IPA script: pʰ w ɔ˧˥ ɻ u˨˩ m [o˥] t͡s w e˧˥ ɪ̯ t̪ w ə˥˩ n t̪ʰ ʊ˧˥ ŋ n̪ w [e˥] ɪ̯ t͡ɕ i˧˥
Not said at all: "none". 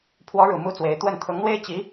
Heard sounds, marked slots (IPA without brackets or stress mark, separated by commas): u˥, e˥